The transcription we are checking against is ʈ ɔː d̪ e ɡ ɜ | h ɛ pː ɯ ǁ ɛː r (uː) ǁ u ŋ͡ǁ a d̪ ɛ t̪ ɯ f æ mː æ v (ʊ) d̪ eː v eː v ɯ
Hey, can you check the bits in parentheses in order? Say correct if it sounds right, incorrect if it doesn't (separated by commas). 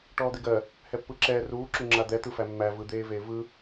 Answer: correct, incorrect